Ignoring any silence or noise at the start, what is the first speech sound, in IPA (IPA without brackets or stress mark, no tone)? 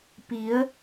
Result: p